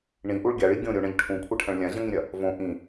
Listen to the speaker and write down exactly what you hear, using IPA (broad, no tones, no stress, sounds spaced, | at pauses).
ɳ ĩ ʔ u ɭ ɡʲ a ɭ i ɡʲ õ ɾʲ o ɳ ɐ̃ ʎ ʈʰ ũ kʷʰ ɐ ʈʰ ɐ̃ ɭ lʲ ã ʑ ɐ̃ ŋ ĩ ɾʲ ɐ | v õ ʔ ĩ